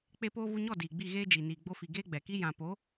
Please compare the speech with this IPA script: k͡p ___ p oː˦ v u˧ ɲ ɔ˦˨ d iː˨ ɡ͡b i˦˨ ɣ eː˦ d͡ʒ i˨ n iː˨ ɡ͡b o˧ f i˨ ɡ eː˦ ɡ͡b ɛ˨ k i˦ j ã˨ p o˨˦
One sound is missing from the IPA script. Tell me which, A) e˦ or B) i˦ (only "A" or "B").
A